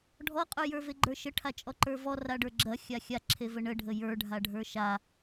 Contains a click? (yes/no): yes